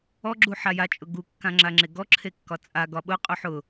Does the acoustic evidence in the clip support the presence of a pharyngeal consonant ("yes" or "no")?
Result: yes